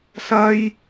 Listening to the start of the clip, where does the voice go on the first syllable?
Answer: high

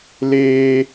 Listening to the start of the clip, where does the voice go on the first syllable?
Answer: high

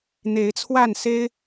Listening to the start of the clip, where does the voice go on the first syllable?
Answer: rising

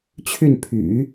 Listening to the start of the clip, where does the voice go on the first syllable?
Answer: falling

